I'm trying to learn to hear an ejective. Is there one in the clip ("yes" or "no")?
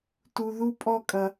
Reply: yes